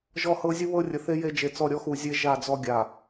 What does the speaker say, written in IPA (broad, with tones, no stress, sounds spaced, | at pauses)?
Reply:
ʒ ɔ˦ h ɤ˦ zʲ u˦ β ɤ˦ rʲ ə˨ θ e˦ j e˦ d͡ʒ e˨ t͡s ɔ˦˨ ɾʲ ɔ˦ x u˨ zʲ e˦ ʒ a˦˨ d͡z ɔ˦ ɡʲ a˨